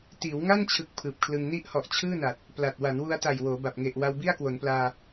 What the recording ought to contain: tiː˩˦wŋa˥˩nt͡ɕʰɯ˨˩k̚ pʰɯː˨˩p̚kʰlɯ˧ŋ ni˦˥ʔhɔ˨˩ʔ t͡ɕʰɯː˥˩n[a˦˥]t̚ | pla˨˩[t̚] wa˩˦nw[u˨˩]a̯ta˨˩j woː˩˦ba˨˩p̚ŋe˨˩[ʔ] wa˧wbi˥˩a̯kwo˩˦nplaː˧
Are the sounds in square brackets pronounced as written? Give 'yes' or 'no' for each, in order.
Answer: no, yes, no, yes

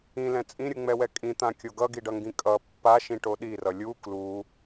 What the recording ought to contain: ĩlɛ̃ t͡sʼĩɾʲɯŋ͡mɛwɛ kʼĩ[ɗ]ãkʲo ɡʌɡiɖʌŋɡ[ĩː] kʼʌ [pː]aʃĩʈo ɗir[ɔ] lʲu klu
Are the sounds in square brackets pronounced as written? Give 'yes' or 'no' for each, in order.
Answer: no, no, yes, no

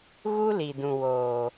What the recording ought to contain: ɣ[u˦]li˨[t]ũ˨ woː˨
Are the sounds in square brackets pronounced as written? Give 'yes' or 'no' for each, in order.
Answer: yes, no

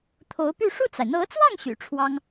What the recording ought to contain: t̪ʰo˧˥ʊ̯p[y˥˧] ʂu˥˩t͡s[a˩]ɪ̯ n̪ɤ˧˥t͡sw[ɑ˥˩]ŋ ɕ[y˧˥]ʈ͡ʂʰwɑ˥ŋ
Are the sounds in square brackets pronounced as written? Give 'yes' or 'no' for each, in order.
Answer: yes, yes, yes, no

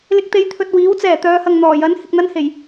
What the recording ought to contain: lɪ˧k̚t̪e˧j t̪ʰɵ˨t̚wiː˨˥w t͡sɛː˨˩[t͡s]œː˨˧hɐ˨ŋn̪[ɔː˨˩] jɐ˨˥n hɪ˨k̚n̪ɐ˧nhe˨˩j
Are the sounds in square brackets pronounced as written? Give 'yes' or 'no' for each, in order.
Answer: no, yes

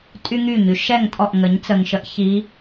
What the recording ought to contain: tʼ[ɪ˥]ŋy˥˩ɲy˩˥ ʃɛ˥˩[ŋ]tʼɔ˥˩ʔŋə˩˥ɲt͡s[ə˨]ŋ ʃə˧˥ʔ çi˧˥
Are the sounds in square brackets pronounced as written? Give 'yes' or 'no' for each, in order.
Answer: no, yes, yes

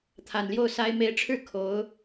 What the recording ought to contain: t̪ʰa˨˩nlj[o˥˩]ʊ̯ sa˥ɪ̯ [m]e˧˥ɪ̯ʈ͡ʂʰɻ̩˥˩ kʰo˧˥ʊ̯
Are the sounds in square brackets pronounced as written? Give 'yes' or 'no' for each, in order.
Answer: yes, yes

